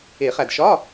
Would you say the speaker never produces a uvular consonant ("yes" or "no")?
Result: no